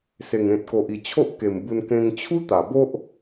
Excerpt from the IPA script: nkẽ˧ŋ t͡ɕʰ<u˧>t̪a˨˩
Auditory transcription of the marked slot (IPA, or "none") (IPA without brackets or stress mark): u˦